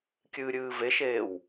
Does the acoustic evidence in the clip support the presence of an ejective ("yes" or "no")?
no